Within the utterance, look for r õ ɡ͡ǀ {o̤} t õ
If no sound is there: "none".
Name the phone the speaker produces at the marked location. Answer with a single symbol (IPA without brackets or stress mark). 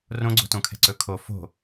o̤